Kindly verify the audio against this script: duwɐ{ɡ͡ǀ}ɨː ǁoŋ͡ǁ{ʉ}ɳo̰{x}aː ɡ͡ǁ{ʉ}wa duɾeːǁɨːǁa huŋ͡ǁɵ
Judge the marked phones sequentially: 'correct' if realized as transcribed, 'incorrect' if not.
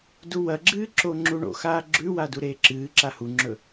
incorrect, incorrect, correct, correct

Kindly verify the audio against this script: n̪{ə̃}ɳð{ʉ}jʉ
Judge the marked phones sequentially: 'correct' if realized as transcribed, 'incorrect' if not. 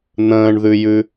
incorrect, correct

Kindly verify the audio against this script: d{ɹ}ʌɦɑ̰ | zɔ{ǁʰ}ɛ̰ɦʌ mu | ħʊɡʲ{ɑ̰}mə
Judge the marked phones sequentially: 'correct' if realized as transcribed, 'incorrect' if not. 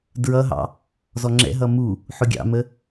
correct, incorrect, correct

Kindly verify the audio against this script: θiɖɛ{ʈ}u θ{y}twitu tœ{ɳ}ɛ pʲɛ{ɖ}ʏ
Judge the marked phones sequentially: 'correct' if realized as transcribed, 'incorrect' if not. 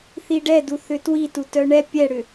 incorrect, incorrect, correct, incorrect

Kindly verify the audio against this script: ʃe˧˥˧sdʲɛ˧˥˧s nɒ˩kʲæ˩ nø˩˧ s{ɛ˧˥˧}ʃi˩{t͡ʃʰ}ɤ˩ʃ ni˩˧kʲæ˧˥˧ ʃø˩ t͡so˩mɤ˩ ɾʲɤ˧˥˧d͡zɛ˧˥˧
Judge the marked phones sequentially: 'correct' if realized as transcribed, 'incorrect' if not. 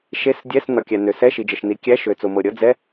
correct, incorrect

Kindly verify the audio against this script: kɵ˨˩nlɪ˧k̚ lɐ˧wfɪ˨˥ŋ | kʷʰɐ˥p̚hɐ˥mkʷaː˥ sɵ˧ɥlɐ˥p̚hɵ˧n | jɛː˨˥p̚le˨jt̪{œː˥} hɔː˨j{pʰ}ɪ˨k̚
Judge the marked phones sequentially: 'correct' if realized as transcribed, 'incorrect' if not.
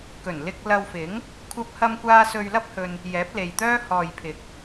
correct, correct

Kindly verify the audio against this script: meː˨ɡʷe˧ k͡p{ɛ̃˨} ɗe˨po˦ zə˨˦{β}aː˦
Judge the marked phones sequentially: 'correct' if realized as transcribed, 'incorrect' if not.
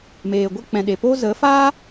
correct, incorrect

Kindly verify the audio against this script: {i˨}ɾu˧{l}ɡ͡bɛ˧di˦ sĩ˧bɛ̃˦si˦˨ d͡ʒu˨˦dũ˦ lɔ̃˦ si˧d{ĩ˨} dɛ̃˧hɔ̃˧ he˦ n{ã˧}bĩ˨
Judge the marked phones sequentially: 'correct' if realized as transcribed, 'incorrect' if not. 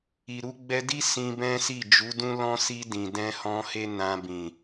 correct, incorrect, correct, correct

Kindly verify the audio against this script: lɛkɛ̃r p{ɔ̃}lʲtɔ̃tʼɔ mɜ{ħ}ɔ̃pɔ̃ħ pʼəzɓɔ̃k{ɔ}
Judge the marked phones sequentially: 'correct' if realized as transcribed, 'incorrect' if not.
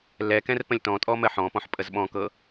incorrect, correct, incorrect

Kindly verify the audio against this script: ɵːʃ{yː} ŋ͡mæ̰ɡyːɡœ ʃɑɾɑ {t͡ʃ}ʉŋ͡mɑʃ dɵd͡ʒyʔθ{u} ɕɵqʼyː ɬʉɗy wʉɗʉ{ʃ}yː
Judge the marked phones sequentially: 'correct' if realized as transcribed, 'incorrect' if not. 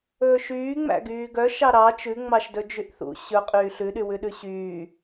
correct, correct, incorrect, incorrect

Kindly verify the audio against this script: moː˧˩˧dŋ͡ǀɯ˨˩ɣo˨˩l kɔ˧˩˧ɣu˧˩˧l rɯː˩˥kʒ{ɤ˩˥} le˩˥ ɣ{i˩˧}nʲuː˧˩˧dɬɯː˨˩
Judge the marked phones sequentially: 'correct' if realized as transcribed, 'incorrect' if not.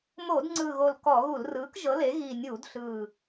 correct, incorrect

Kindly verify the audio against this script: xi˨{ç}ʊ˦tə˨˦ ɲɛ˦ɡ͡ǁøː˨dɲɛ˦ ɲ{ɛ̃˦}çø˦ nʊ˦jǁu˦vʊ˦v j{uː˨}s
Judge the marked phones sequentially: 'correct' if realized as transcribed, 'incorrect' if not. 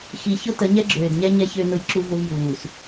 correct, incorrect, correct

